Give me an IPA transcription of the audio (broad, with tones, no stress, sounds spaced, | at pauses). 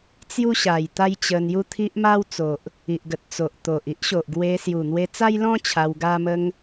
t͡s j u˦ ɕ a˨˩ j t̪ a˦ j t͡ɕ ə˧ n j u˦ t̪ʰ i˦ ʔ m a˦ w t͡s o˨ ʔ | i˨ ʔ ɡ ə˨ t̚ t͡s o˨ ʔ t̪ o˨ ʔ i˦ ʔ ɕ o˨ ʔ ɡ w e˧ s j u˨˩ n̪ w e˧ t͡s a˦ j l ɔ̃˦ t͡ɕʰ a˧ w ɡ a˦ m ə˦ ŋ